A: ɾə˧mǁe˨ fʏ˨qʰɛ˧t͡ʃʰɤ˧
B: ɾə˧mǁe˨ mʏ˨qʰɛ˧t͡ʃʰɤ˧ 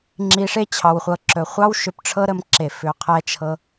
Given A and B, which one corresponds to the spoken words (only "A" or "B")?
A